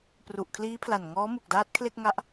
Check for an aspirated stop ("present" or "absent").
present